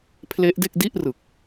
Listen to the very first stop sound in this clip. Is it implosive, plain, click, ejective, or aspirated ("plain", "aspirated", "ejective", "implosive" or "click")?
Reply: aspirated